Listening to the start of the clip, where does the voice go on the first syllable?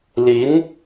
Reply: rising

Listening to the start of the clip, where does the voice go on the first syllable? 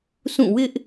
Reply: falling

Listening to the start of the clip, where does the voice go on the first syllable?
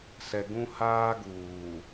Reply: low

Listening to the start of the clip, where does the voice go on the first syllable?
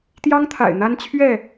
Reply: high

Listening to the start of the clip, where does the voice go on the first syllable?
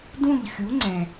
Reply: falling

